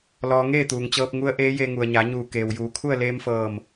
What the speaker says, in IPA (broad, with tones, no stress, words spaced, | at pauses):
lɔː˧ŋeː˥˨t̪uː˩ŋt͡ɕɤː˧p̚ ŋu˧˥ə̯ʔeː˧˥je˧ ŋu˩ə̯ɲa˩˧ɲuː˧˩ keː˩wjuː˩˧kʰu˥˨ə̯ leː˧mfɤː˧˩m